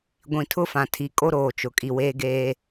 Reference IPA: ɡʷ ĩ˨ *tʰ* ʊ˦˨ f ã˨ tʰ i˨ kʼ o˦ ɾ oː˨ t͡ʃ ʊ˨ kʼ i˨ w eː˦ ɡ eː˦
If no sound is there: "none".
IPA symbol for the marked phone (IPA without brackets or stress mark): tʰ